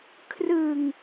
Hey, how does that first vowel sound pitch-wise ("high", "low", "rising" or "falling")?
low